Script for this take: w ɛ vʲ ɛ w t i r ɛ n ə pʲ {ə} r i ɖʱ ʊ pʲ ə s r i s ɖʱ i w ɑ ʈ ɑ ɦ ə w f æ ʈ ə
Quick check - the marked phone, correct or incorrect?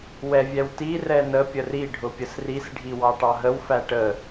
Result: correct